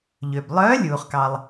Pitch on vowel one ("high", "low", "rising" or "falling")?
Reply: low